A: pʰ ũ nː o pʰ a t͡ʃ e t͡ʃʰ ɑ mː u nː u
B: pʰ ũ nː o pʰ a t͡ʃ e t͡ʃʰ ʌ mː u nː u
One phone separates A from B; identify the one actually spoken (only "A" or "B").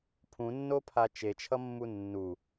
B